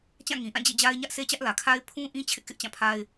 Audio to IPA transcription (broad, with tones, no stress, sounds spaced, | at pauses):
t͡ɕ ã˦˨ ŋ ĩ˨ ʔ ã˦˨ d͡ʑ ḛ˦˨ d͡ʑ a˦ ɪ̯ ɲ ä˦ ʔ sʰ e˦ t͡ɕ ä˦ ʔ l ä˨ kʰ a˦ ɪ̯ pʰ ũ˦ ʔ ĩ˦ t͡ɕʰ ɪ˦ ʔ k ɪ˦ ʔ t͡ɕ ã˦˨ pʰ a˦ ɪ̯